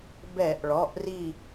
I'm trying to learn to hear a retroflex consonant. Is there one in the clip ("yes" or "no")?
yes